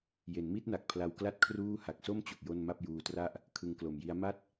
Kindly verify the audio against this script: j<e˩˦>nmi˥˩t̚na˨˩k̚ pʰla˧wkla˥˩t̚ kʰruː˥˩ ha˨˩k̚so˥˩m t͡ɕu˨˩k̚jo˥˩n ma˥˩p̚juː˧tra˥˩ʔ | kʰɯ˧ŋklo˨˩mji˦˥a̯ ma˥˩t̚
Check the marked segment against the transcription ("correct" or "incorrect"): correct